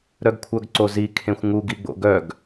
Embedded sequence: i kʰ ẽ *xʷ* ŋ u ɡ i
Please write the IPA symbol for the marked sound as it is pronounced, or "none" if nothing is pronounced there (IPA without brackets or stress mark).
xʷ